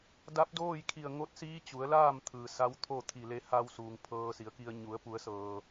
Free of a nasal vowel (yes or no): yes